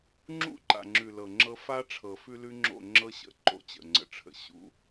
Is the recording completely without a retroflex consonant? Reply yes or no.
no